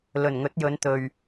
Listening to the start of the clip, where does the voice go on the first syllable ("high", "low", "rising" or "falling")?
low